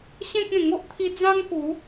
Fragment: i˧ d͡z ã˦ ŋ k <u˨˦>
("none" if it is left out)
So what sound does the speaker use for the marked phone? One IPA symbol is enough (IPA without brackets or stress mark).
u˨˦